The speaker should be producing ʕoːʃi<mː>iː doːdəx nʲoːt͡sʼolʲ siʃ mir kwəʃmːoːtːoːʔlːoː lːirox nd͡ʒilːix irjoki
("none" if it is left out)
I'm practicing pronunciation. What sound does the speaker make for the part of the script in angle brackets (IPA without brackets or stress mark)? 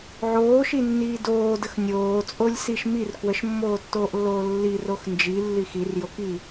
nː